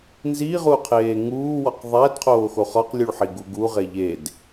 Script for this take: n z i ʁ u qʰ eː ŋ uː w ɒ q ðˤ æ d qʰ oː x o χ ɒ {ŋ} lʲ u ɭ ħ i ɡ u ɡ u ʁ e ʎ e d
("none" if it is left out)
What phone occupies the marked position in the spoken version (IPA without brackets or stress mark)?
q